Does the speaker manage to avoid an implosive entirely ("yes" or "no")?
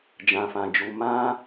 yes